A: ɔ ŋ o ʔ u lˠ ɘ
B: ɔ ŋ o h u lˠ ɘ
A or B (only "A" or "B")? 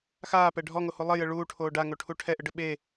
B